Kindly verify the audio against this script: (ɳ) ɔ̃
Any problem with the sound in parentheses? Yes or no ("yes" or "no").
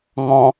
yes